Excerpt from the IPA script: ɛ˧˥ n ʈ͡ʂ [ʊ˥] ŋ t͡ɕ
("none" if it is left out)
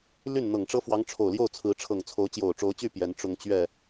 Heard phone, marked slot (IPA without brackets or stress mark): ʊ˥